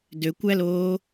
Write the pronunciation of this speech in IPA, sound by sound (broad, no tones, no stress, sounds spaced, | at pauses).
d ø kʷ æ l oː